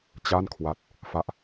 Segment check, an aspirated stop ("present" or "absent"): present